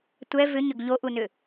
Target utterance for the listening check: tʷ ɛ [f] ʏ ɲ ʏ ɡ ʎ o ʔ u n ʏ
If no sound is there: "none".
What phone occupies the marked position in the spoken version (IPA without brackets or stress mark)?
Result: v